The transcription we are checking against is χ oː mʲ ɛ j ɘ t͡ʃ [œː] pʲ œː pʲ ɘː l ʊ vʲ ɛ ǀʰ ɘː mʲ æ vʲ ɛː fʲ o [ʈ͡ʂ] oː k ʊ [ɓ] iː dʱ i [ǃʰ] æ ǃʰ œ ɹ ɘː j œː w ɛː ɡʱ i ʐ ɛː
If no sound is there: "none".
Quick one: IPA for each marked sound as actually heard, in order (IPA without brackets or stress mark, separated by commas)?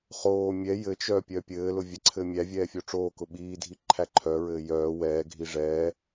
œː, ʈ͡ʂ, ɓ, ǃʰ